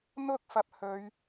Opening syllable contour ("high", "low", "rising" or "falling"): high